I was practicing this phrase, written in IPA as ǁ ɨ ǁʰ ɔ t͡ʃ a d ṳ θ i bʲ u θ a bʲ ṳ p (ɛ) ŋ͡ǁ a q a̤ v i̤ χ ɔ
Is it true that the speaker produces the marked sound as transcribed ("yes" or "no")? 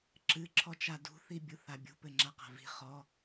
no